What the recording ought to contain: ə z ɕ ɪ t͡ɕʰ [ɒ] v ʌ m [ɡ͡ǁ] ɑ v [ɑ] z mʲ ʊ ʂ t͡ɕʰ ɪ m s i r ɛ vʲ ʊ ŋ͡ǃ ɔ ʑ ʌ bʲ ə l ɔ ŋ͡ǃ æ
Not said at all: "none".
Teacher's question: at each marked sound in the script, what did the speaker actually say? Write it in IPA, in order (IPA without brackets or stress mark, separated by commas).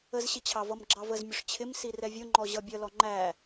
ɑ, ɡ͡ǁ, ə